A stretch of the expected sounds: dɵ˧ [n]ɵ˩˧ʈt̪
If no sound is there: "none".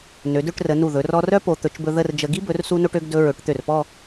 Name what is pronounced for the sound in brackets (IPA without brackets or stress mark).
ɹ